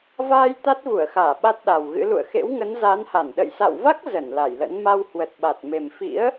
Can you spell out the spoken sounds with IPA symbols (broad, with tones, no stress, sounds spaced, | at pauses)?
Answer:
v aː˧ j t̪ a˦˥ t̚ v u˧˩ ə̯ x aː˧˩ ɓ a˦˥ t̚ ɗ a˨˩ w ɣ ɨ̰˧˥ l ṵ˧˨ ə̯ x ḛ˧˥ w ŋ ə˨˦ n z a˨˦ n h a˧˩ n ɗ ə̰˧˨ j s a̰˧˨ w v a˦˥ k̚ z ə˧˩ n l a˧˩ j l ə̰˧˥ n m a˧ w h w ə˨˩ t̚ ɓ a˨˩ t̚ m e˨˩ m f ḭ˧˥ ə̯